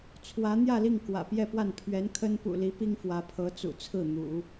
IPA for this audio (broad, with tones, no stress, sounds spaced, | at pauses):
t͡sʰ w ä˧˥ n̪ j ä˥˧ l i˥˩ ŋ k w ä̰˨˩ p j ɛ˥˧ p w a˥˩ n pʰ ɥ ɛ˧˥ n kʰ ə˥ n p ṵ˨˩ l i˧˥ p i˥ ŋ f w ä˧˥ pʰ ɤ˧˥ t͡s ṵ˨˩ t͡sʰ ɹ̩˥˩ n̪ ṵ˨˩˦